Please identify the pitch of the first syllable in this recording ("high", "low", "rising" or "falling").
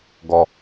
low